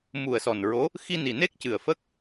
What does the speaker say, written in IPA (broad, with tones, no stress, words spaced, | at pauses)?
mu˨˩ə̯ sɔ˨˩nɹo˧˥ | xi˧ni˨˩ne˦˥k̚cɨ˨˩ə̯ fə˦˥k̚